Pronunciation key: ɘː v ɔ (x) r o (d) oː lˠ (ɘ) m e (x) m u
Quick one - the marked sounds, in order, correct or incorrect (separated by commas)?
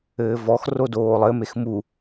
correct, correct, correct, correct